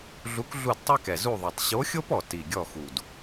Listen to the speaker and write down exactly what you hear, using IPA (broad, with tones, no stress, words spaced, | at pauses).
ɮu˧˥kɮu˦˨d tˤɛ˥kɛ˨˩ zu˦˨ðˤɛ˨˩tˤ ɕo˧˥xʲo˥pɔ˨˩ ti˨˩ɡʲɔ˦˨xu˨˩d